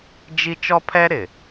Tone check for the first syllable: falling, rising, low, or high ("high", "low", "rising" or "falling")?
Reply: high